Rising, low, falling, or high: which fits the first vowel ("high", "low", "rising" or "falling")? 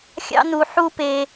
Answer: high